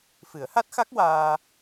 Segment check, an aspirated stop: absent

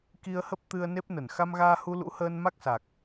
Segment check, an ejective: absent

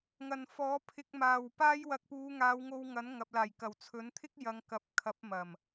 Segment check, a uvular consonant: absent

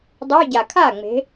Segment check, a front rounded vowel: present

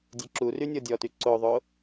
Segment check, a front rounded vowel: present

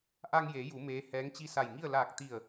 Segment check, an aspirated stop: absent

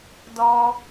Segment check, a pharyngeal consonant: absent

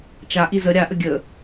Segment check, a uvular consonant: absent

